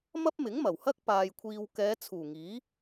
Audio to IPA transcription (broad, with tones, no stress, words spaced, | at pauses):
mɐ˥p̚mɪ˨˥ŋ mɐ˨˩whɐ˥k̚ paː˨jkʷʰiː˨w kɛː˨˧t͡sʰuː˨˩ŋiː˨˥